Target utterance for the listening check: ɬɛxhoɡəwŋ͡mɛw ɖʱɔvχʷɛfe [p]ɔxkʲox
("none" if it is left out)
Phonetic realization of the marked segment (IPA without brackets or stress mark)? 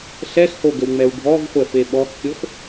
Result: ɓ